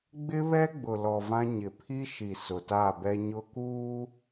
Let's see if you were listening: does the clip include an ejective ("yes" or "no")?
no